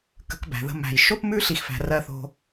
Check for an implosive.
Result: absent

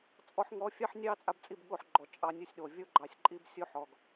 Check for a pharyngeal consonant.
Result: present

